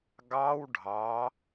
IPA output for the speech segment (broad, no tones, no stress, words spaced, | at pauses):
ɡɑw ɖʱɑ